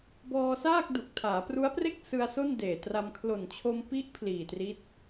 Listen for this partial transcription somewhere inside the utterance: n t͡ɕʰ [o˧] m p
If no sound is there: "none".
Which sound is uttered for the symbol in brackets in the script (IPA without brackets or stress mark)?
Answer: o˧